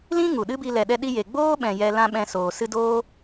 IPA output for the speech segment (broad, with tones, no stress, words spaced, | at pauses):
lĩ˦ ŋu˨ɗɨ˦bi˧ lɛ˨ɗɛ˧ ɗi˧je˨ ɡ͡boː˦ɓɛ̃˨ jɛ˧lã˦ɓɛ̃˧soː˨ sɨ˧doː˦